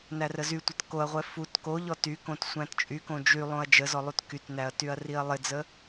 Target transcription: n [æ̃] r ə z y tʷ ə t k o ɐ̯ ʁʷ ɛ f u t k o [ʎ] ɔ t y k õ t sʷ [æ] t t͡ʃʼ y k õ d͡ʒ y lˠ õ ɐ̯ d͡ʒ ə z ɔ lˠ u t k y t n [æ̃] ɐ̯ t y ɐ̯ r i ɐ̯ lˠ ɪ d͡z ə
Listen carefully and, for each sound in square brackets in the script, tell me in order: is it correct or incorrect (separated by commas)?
incorrect, correct, incorrect, incorrect